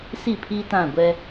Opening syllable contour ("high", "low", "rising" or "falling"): falling